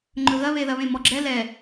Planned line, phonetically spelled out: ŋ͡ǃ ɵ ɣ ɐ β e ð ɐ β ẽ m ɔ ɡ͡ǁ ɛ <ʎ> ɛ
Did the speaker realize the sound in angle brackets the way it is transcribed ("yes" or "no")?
no